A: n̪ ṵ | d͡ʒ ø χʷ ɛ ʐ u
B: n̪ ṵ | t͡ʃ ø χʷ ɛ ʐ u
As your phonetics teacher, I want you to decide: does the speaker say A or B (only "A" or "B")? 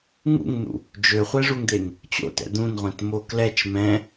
A